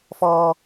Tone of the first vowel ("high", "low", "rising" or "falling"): high